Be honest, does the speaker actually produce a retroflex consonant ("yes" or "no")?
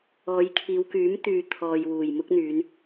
no